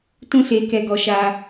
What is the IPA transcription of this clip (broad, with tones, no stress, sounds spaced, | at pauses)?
t ũ˦ s e˧ k ɛ˧ ɡ ɔ˧ ʃ a˧